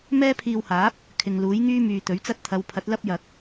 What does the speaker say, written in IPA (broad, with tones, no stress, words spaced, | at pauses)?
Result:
mɛː˥pʰiː˧whaː˨˥p̚ | kʰɪ˨ŋluː˨˥j ŋyː˥myː˨t̪ɵ˨˥ɥt͡sɐ˥t̚ t̪ʰɐ˨˧wpʰɐ˨˥t̚lɐ˥p̚jɐ˨k̚